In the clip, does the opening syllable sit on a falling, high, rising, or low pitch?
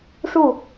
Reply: falling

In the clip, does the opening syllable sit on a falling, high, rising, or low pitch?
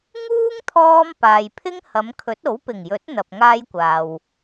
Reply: high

